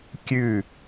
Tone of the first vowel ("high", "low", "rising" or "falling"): falling